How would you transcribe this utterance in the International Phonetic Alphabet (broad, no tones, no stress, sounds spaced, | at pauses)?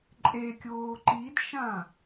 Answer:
ǃʼ e kʲ oː ǃ i d ʃ ã